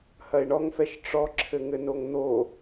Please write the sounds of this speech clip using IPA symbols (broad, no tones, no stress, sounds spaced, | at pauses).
h ɐ e̯ ɳ ɔ ŋ f ɛ ʃ ʈ͡ʂ ɔ ǁʰ ɘ ŋ ɘ n o ŋ n̪ o